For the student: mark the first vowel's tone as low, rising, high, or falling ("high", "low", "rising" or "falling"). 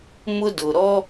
high